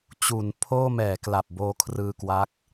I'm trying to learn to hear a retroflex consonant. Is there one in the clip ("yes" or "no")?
no